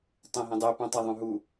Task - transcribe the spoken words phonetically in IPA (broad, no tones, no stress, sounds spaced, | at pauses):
tˤ ẽ ɦ ẽ dˤ e p ũ tˤ a ðˤ ũ ɦ u